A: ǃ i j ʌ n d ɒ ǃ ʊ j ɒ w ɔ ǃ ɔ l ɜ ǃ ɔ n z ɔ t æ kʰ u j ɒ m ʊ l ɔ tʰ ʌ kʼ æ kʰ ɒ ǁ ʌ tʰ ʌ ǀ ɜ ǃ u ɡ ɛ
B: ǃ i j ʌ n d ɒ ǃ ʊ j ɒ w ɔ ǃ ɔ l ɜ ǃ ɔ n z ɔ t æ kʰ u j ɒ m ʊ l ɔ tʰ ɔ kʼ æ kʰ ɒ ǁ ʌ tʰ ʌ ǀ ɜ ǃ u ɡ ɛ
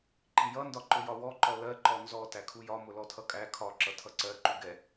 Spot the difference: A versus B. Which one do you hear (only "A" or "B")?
A